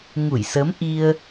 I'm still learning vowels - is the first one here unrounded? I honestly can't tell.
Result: no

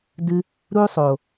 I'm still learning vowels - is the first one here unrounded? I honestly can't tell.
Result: yes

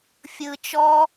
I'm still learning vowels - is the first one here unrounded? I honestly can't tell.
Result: yes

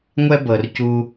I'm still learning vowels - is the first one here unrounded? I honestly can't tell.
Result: yes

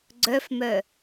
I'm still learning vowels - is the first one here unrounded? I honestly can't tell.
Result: no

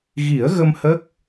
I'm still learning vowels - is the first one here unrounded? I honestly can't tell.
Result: yes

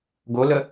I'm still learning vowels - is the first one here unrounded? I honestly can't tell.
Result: no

